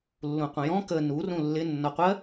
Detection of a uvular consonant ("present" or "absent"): present